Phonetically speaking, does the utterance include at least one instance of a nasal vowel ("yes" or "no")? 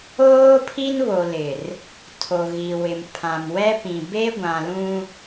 yes